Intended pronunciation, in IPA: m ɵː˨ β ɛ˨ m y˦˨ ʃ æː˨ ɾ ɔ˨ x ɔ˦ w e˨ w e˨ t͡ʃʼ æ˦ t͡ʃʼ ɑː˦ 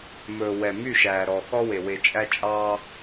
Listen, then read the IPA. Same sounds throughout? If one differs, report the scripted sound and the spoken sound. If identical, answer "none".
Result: β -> w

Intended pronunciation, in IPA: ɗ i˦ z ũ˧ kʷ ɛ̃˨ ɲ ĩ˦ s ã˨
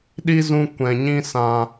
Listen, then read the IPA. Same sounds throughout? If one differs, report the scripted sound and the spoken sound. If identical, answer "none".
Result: none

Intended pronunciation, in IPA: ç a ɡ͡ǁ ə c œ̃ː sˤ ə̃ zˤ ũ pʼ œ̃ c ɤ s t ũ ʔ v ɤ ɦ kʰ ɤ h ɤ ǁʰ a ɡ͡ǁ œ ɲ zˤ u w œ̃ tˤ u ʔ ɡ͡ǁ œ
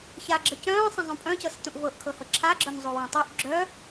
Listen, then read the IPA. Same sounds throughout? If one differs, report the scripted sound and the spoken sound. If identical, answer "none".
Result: ɦ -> ʔ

